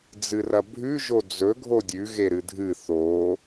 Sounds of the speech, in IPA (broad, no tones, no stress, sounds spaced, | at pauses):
d͡z ɨ r ɐ bʱ ʉ ʒ o d͡z ɵ ɡʱ o dʲ ʉ ɣ e ɾ ɨ dʱ ɨ θ o